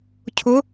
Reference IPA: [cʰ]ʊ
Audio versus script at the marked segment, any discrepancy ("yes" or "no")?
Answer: no